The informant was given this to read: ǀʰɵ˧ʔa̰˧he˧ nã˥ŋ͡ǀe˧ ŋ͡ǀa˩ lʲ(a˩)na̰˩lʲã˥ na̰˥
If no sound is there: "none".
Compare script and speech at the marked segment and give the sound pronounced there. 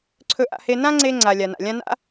a˩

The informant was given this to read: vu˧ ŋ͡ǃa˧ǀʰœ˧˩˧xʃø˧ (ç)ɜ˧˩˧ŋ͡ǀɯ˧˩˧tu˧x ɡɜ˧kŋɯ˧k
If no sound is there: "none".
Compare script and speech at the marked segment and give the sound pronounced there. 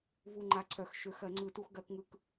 x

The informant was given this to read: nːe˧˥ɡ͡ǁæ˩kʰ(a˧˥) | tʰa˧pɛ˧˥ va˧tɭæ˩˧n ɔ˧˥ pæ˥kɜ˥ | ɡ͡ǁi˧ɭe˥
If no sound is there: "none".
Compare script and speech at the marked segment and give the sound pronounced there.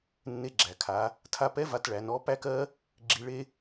a˩˧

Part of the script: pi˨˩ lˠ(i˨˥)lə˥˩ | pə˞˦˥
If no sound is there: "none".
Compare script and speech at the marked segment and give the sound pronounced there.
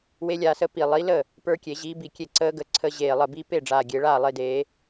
i˨˥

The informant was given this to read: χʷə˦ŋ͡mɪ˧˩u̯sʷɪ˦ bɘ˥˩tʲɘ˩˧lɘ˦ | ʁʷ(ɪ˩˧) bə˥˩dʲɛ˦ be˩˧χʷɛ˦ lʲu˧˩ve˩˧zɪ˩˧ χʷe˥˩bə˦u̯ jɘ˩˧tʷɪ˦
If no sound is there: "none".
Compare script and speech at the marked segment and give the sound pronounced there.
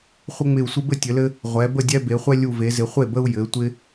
ɛ˩˧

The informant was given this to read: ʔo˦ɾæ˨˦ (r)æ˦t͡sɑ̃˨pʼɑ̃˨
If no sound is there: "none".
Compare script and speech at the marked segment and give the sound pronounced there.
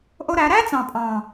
ɾ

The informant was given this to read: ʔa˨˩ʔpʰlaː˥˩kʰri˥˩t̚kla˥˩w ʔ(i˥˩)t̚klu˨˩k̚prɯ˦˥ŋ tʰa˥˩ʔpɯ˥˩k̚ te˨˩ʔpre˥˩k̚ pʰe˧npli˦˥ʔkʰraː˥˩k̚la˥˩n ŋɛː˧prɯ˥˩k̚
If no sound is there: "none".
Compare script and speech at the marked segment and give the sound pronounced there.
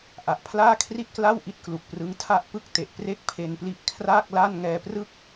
i˥˩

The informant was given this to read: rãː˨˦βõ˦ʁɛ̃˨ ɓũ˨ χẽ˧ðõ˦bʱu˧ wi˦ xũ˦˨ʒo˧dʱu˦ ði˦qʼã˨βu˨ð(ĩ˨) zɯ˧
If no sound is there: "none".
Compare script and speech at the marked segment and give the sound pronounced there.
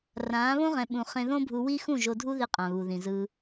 ĩ˨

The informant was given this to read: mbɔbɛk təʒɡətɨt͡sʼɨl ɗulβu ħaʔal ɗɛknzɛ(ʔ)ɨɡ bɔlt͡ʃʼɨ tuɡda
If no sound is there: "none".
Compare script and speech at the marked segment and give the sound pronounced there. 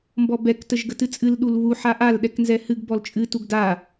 h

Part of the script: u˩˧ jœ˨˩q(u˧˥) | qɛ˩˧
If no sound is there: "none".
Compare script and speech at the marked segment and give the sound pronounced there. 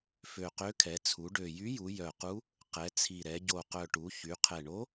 u˧˥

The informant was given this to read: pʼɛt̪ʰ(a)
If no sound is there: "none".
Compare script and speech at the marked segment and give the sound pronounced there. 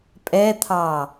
ɑ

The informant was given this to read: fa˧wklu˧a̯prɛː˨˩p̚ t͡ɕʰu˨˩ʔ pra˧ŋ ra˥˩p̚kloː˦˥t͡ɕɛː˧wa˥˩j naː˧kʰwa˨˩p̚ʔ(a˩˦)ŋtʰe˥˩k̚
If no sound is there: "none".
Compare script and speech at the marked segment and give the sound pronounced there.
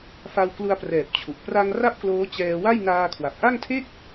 a˥˩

